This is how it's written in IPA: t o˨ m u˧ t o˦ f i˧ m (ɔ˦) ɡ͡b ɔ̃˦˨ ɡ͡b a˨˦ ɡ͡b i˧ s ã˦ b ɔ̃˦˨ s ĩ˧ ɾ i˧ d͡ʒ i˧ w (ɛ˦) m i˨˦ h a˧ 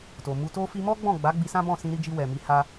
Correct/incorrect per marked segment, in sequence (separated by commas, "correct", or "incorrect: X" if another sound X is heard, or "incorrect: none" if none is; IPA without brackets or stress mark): correct, incorrect: ɛ˨